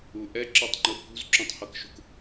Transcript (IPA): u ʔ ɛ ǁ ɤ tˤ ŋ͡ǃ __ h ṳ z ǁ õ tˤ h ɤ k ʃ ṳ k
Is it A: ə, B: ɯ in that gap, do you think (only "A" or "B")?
B